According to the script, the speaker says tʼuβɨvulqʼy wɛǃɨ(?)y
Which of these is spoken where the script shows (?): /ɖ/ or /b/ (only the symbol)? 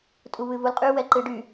ɖ